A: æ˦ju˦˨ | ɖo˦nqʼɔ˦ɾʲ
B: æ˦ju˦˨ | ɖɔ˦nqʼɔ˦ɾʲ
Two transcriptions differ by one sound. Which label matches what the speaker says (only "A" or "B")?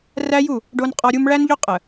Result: A